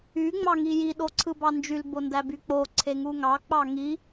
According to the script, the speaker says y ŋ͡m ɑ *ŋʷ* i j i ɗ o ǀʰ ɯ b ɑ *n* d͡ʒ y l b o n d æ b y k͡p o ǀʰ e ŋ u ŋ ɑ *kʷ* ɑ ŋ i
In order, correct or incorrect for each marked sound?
incorrect, correct, incorrect

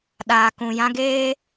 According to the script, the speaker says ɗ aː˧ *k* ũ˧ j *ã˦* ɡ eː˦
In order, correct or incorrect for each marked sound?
correct, correct

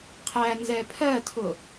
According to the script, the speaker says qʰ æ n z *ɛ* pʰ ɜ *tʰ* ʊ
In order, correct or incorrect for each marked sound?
correct, correct

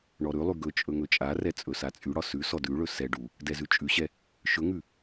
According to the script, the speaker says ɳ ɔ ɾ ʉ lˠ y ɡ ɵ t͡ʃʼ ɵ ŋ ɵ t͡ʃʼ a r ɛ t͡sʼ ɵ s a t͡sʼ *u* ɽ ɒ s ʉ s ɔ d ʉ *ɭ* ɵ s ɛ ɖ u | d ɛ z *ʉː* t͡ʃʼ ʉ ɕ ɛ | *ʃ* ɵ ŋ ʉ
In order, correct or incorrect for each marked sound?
incorrect, correct, incorrect, correct

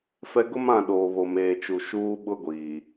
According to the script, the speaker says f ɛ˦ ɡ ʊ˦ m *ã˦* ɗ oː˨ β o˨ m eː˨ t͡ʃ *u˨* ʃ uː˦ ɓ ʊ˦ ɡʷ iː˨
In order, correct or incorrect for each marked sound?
incorrect, correct

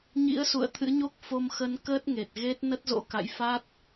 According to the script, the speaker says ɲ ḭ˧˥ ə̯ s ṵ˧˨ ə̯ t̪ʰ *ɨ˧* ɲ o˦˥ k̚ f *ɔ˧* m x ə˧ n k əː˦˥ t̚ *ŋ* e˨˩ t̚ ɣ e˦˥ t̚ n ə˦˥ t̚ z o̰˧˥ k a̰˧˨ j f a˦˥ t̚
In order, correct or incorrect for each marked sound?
incorrect, incorrect, correct

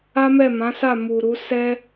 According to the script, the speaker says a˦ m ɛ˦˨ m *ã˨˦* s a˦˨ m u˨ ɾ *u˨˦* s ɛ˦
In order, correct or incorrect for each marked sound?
correct, correct

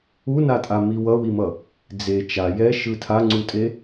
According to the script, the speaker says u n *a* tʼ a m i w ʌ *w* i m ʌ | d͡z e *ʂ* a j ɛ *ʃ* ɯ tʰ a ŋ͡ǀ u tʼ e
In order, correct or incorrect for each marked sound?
correct, correct, incorrect, correct

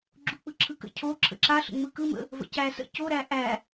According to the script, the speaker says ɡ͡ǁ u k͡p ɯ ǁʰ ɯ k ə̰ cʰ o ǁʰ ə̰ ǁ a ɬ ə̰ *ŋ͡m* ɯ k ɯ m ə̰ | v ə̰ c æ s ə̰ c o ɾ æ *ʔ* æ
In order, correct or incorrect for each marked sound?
correct, correct

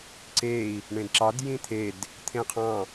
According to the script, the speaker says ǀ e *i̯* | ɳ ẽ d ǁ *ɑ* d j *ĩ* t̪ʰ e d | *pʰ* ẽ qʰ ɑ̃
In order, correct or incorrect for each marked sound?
correct, correct, correct, incorrect

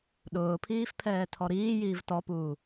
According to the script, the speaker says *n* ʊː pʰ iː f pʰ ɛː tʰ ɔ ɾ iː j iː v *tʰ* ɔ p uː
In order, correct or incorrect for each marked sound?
incorrect, incorrect

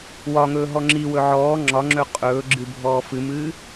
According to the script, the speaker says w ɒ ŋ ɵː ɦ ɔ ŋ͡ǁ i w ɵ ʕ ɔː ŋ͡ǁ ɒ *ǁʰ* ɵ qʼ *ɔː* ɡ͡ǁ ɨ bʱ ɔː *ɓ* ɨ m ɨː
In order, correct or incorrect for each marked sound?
incorrect, incorrect, incorrect

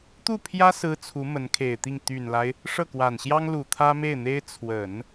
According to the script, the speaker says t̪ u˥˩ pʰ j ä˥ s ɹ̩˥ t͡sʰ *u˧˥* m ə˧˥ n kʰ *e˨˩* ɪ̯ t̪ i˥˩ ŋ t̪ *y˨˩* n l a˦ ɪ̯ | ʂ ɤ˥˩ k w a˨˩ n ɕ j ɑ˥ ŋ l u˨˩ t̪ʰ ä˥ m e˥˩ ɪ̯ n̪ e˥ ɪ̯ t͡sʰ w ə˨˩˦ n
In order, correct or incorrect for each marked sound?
correct, correct, correct

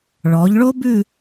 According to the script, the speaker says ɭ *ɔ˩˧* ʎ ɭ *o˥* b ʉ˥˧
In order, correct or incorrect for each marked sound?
correct, correct

